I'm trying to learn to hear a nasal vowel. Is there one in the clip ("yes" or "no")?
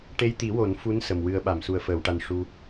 no